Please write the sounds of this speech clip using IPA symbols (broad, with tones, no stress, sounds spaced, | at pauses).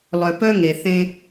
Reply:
lˠ œ˨ p œ˦ ŋ e˨ θ ẽ˦